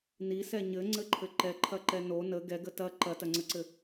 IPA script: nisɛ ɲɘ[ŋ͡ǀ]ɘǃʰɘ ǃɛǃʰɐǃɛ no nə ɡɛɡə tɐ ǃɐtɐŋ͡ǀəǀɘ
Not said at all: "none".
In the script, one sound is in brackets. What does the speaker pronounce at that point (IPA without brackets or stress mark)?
ŋ͡ǀ